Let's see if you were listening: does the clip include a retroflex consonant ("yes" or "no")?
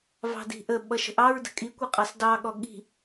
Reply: no